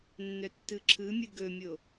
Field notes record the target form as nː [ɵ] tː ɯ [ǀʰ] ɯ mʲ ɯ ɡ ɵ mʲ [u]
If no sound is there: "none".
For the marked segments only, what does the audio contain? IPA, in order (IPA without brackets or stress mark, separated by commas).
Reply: œ, ǁʰ, o